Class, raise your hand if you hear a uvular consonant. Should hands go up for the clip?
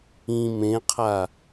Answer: yes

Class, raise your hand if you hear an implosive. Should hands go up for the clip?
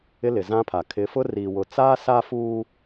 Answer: no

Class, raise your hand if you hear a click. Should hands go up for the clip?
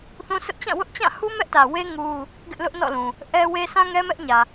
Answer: no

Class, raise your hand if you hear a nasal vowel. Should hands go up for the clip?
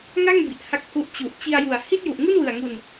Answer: no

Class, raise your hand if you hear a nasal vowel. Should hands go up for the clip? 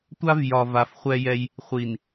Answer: no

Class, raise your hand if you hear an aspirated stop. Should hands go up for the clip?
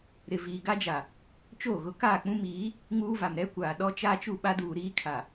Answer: yes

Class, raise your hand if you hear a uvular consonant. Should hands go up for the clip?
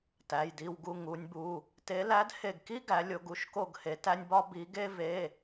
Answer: no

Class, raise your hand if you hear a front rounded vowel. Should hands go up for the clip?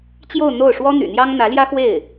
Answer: yes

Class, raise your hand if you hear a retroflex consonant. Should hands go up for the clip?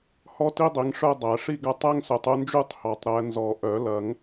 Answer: yes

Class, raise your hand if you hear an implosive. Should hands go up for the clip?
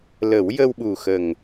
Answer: yes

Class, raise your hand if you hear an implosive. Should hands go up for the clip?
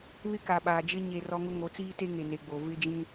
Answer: yes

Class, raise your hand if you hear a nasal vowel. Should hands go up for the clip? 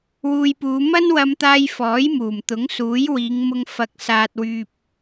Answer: no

